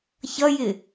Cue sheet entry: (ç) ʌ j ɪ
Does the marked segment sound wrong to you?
no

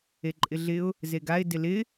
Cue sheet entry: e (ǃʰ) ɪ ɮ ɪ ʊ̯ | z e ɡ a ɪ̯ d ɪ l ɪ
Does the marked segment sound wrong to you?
yes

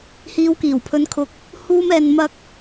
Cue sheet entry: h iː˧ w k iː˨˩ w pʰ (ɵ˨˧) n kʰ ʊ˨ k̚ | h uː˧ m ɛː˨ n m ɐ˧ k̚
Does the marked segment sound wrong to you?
no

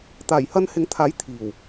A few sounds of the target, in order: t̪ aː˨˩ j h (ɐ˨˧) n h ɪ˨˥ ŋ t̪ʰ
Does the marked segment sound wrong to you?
yes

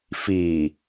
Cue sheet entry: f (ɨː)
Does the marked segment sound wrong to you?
yes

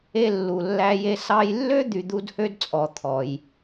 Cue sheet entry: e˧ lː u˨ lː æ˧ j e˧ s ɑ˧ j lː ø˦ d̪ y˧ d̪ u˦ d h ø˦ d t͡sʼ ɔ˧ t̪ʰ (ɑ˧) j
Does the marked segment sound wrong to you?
yes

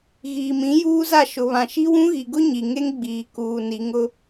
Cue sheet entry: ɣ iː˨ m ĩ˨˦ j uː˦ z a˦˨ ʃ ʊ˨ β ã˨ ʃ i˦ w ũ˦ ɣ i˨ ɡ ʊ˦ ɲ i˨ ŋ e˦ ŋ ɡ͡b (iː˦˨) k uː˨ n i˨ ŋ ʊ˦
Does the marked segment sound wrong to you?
yes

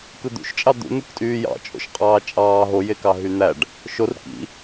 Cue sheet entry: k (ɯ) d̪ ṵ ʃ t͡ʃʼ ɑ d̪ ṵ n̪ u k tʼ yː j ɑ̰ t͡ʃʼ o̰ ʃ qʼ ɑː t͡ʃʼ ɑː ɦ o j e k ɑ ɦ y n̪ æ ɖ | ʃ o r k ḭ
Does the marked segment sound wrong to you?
no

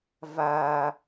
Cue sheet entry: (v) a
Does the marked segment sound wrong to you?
no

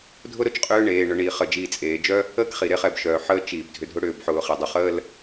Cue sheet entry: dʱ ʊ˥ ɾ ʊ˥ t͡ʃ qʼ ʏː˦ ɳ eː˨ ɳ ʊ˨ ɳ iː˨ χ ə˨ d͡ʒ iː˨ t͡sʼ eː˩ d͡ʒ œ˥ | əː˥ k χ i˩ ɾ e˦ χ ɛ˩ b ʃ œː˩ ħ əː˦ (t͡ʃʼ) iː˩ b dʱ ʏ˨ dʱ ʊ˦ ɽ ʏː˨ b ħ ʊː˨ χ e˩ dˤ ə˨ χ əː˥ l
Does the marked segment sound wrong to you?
yes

